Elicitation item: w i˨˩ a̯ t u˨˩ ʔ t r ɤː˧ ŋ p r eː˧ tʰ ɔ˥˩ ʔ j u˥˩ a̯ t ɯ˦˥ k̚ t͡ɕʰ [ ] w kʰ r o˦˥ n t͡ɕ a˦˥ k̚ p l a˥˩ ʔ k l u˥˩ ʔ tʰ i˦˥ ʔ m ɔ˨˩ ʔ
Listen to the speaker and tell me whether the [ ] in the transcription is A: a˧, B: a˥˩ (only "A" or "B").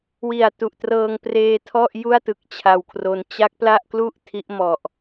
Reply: A